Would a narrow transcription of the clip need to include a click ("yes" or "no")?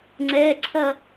yes